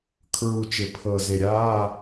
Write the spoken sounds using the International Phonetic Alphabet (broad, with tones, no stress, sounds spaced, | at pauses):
kʰ ɹ u˨˩ t͡ʃ ɪ˨˩ pʰ ɤ˨˩ z e˨˩ ɾʲ aː˧˥˧